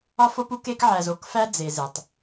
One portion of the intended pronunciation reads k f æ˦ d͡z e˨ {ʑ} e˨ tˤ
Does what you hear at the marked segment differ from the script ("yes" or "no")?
yes